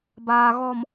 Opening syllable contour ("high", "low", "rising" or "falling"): low